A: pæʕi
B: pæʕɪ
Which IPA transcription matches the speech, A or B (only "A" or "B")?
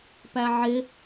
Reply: B